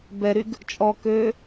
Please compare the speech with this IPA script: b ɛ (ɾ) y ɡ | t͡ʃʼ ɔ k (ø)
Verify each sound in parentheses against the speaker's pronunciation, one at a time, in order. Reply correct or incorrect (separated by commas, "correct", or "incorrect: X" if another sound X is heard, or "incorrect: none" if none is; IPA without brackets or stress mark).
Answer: correct, correct